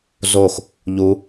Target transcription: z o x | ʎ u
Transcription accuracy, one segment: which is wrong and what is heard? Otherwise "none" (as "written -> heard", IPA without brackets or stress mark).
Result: none